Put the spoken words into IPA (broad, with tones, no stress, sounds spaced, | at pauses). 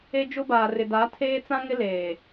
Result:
e˦ d͡ʒ ʊ˦ b aː˨ r ɪ˨ d a˨˦ tʰ eː˦ t͡s ã˦ ŋ ɪ˦ l eː˨